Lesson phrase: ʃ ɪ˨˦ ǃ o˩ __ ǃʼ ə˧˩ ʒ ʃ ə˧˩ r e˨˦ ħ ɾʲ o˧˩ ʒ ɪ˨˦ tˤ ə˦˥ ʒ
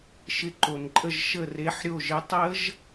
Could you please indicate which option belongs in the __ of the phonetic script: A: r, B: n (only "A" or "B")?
B